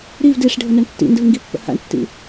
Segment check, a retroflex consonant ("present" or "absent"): present